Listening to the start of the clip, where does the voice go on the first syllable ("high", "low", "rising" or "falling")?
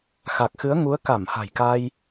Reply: low